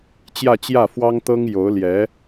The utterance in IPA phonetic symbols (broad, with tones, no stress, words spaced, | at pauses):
t͡ɕjä˥˧t͡ɕjä˥˩fwɑ˥ŋ t̪ɤ˥ŋjo˧˥ʊ̯ljɛ˧˥